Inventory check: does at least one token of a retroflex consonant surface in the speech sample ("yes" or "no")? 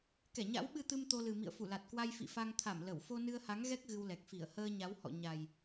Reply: no